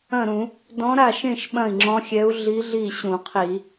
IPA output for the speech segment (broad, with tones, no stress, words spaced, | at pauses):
ɐ̃˥˩ɾũ˧˩˧ | dɔ̃˧˥ ɾa˥˩ʃẽ˥˩ʃ ɓɐ̃˥˩i̯ŋ͡ǁɔ̃˧˥xʲɛ˧˥u̯ ɮi˧˥ɮi˥˩ ɕũ˧˩˧qʰi˧˩˧